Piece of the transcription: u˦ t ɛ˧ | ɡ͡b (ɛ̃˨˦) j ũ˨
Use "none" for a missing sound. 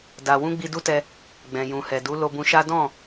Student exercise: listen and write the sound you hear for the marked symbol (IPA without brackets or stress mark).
ɛ̃˨